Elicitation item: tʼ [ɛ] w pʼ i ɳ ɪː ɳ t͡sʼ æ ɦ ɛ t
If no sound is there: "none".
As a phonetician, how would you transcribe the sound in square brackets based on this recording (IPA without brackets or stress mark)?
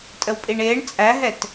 ə